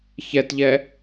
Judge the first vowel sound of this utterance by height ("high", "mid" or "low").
mid